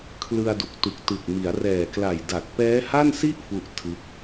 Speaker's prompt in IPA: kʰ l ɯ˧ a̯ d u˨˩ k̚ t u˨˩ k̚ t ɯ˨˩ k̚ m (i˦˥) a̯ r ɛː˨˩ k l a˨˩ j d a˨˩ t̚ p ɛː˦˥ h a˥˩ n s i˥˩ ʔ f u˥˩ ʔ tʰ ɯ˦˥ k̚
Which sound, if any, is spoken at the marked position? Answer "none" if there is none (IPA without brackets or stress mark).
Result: i˩˦